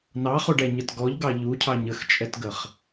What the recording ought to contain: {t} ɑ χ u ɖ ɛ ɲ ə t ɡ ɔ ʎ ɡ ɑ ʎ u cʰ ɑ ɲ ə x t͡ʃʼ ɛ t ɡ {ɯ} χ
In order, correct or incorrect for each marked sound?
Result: incorrect, incorrect

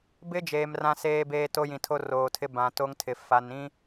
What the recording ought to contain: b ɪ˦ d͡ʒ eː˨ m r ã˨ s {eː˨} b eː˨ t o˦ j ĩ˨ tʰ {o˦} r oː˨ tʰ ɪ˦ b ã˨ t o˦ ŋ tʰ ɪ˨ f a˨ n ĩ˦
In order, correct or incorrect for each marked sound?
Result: correct, correct

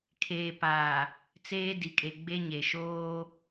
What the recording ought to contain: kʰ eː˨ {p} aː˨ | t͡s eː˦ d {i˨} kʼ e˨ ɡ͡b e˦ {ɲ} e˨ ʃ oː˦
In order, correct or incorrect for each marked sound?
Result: correct, correct, correct

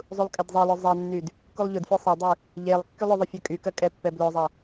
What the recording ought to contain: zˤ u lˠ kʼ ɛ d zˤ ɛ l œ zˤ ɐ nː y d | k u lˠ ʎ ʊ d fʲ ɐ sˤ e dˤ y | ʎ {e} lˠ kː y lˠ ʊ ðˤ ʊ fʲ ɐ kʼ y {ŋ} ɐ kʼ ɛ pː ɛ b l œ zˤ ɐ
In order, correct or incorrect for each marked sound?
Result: correct, incorrect

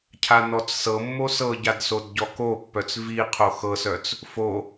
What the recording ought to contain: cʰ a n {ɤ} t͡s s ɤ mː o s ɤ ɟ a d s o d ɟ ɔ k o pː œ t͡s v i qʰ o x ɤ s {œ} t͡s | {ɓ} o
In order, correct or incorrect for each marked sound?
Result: incorrect, correct, incorrect

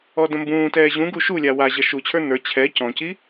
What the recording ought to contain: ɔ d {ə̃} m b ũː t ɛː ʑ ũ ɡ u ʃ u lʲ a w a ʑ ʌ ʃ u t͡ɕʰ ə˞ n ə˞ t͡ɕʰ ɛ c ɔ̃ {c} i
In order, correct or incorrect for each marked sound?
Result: correct, correct

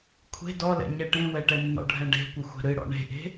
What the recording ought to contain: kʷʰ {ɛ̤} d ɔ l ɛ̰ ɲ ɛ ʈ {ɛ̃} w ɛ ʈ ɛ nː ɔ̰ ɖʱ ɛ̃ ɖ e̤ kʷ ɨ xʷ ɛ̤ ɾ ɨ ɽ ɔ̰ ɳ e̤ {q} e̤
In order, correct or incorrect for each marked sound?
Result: incorrect, incorrect, incorrect

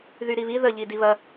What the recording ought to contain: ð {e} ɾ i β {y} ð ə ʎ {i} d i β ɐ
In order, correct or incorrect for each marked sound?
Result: incorrect, incorrect, correct

